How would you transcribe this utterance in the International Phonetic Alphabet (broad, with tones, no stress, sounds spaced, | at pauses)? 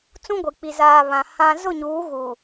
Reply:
t͡s ũ˦ ɡʷ i˨ k͡p i˨ z aː˨ β ã˨ h ã˦ z ʊ˦˨ ɲ uː˨˦ ɣ uː˨